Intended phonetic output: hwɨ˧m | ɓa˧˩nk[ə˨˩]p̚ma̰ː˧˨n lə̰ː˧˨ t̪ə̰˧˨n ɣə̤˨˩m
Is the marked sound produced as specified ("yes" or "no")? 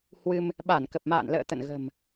yes